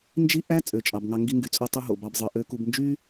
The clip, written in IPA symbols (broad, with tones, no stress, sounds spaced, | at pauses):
n d͡ʒ i˥ ʔ æ˥ t͡sʼ ø˩ t͡ʃʼ ɑ˩ b ŋ ɑ˨ ŋ ɡ i˨ ŋ ɡ y˩ t͡sʼ o˨ tˤ u˨ ɦ o̰˩ b ɑ˨ b zˤ ɯ˩ ʔ ø˨ k u˨ b n d͡ʒ y˦